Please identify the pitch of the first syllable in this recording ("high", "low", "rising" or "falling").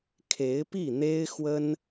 rising